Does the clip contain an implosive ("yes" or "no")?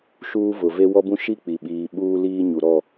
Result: yes